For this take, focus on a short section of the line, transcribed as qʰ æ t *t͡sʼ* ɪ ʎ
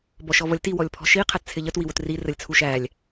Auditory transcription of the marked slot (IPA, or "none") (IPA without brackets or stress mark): t͡sʰ